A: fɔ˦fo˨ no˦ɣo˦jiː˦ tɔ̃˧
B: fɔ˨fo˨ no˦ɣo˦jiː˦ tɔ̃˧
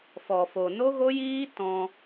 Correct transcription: B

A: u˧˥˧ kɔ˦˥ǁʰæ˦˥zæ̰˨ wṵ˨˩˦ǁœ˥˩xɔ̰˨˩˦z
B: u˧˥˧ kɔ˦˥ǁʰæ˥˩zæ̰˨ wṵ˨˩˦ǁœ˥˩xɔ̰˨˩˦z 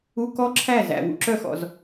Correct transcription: B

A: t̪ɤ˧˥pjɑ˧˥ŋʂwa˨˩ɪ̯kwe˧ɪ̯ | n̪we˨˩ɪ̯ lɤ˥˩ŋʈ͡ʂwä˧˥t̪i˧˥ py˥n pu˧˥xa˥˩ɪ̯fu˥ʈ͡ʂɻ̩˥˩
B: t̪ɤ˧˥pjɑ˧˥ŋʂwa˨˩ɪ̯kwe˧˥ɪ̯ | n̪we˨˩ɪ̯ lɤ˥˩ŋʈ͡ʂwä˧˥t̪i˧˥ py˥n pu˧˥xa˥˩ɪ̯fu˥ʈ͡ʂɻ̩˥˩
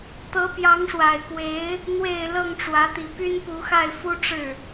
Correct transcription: B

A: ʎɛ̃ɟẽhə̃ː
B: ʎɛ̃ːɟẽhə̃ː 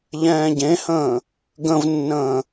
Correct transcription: B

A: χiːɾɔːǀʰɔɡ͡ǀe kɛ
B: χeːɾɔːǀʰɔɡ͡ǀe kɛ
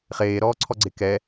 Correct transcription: B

